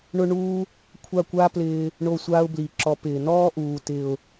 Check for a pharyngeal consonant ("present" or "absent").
absent